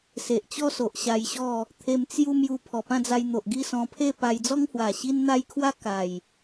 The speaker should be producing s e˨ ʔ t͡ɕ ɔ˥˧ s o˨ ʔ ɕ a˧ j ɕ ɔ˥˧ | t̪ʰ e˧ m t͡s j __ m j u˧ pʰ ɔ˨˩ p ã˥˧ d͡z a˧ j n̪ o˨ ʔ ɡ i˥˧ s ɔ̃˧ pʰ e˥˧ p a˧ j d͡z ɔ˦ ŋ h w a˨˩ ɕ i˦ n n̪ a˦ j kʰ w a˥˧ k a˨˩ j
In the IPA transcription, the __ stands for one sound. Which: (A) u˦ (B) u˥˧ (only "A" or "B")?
A